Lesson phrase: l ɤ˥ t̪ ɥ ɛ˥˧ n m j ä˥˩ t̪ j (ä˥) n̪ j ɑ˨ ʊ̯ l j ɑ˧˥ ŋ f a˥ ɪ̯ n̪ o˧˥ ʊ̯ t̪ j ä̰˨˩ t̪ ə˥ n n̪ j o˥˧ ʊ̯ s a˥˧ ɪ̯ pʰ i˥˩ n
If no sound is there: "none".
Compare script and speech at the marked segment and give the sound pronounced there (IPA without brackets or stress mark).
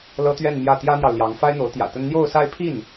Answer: ä˥